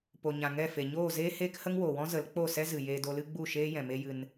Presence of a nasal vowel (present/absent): present